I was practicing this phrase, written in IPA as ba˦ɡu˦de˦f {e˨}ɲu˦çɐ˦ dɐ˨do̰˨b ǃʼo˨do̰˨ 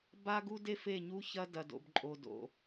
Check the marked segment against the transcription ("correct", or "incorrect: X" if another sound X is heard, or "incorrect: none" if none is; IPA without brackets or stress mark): incorrect: e˦˨